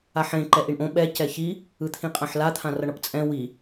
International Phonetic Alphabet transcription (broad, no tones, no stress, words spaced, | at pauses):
aħẽ ǃɛʔiɳʔõ ɓɛ cɛçi | ɯt̪ʰĩqʼãħla t̪ʰãrʌɳʌpt͡sʼɛ̃ wi